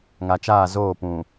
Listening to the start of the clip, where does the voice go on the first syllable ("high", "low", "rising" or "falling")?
low